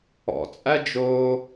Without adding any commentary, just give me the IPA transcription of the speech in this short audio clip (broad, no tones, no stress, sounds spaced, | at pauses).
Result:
ɔ̰ t͡sʼ æ d͡ʒ oː